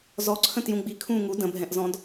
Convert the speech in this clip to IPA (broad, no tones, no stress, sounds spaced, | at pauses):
z ɔ ǀʰ ə̃ t j ũ ɡ͡b i kʰ ũː ŋ u d ə̃ bʱ ɛ̃ ʔ z ɔ̃ d